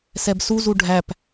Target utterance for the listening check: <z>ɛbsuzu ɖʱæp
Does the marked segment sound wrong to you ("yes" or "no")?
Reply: yes